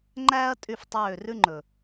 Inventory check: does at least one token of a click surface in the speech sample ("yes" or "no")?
yes